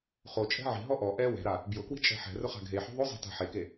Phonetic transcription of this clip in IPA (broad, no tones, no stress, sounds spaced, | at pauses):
χ o t͡ʃʼ ɛ̤ ʕ i̤ ɦ ɔ ʔ ɔ ʔ ɛ w ɛ̤ ɾ a | b j ʊ k w i̤ t͡ʃʼ ɛ̤ ħ ɛ̤ r ʊ χ a̤ ɡʱ e ħ o̤ ðˤ o zˤ ɛ̤ t a̤ ħ e k e